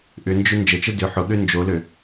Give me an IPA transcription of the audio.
ʔʏnd͡ʒʏ nd͡ʒət͡ʃə dʏ ħʊɠø nd͡ʒolø

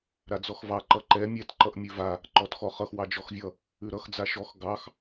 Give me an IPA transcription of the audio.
ɾad͡zɔxvɑ ǃʌǃɛ mʲɛt ǃʌʔmʲʉva | ǃɔtxɔχʌx wɑd͡ʒɔxvʲʌ | ʉɾʌx d͡zaʃɔx ɡɑx

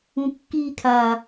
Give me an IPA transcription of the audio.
ũkːi kʰa

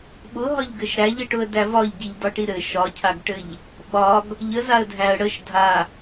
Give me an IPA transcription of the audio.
ɓʊɦɒʎɡɘʃ ɾæʎəʈʊə̯dæ vɒʎɟiʎdɒʈi ɾɘ ʃɒcʰaɡʈɘʎ | ɓɒɡ | ʎəzaə̯dʱæə̯ ɽəʃ dʱa

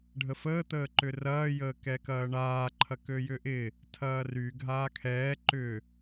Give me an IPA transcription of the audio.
ɖʱəfəː t̪əːǃʏrɐː jəːkɛkɐːɳaː ǃʰɐkøjʏʔɪ | tʰɐːry ɡʱaːkʰɛː ǃʏ

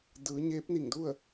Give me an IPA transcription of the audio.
dɯː˩˧ ɲeː˧˥p̚ni˧˩ŋdu˥˨ə̯

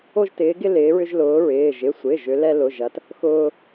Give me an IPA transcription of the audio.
o˦ʒtɪː˨˦ɡɪ˦ lɪː˨˦ɹʏ˦ʒ lʊː˨˦ɹɪː˩˧˩ ʒɪ˩˧˩sʷɪː˩˧˩ ʒʏ˨˦lɛ˦ lʊ˩˧˩ʒɐ˨˦t | xʊː˦

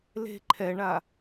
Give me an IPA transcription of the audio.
le̤ ǃʰɛɳa

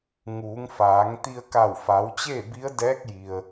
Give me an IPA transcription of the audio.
ŋuː˩˧ŋfaː˩˧ŋ t̪i˧ə̯ka˧˩wfa˩˧wt͡ɕeː˥˨ bi˧˥ə̯dɛː˧˥k̚ ji˩ə̯

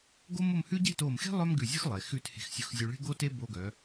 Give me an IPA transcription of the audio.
ɡo˥mʊ˥˧mhʉ˥ ɟe̤˥˧to˧˩mxe̤˥ lˠœ˥mɡʉ˧˩zʲʉ˥x lˠe˩˧xʉ˥˧t he̤˧˩xsʲʊ˧xzʲʉ˧ɭe̤˥ ɡo˥te˥ bo˧ɡœ˩˧

